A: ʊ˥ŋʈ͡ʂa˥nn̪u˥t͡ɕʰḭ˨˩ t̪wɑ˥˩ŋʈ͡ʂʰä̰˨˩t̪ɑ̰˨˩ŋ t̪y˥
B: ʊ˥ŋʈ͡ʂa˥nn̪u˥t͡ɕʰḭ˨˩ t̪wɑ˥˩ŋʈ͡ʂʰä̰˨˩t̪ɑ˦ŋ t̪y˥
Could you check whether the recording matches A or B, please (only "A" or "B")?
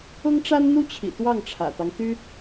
B